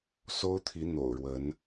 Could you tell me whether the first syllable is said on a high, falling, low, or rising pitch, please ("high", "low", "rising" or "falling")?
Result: high